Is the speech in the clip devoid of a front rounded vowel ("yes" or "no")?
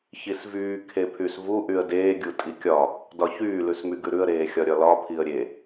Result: no